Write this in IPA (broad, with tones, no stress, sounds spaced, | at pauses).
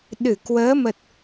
ɗ ɨ˧˩ k w əː˨˦ m ə˨˩ t̚